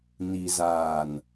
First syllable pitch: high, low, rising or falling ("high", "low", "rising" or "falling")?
low